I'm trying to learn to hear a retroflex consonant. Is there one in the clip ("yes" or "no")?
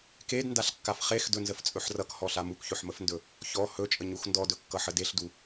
no